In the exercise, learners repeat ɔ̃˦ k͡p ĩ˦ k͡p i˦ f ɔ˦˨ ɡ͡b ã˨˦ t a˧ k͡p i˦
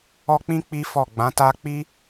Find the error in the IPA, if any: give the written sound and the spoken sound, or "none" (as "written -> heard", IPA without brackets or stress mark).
ɔ̃˦ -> ɔ˦